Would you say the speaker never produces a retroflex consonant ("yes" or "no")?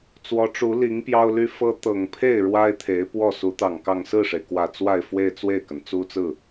no